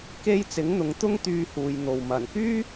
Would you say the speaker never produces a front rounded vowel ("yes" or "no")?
no